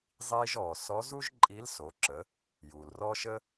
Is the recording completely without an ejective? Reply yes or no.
no